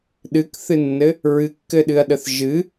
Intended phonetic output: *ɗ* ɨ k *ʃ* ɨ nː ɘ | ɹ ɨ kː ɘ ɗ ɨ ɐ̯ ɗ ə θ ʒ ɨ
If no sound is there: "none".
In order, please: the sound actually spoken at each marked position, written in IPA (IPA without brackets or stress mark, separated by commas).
ɗ, θ